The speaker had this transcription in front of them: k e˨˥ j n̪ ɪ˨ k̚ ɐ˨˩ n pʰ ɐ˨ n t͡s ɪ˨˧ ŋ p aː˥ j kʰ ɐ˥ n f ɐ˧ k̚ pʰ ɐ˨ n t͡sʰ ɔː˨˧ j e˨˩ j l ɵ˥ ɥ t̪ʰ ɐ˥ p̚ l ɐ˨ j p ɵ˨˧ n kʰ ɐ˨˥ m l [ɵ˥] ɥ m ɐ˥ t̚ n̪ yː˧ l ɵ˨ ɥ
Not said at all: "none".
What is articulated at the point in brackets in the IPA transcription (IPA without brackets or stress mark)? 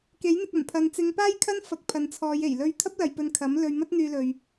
ɵ˧